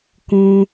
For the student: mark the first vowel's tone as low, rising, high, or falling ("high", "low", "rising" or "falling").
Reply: high